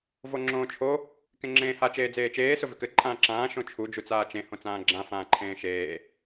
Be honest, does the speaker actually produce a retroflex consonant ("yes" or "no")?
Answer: no